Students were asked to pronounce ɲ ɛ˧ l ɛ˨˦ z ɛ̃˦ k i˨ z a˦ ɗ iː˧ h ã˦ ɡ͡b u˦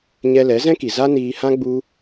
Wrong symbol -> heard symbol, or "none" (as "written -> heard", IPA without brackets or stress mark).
ɗ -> n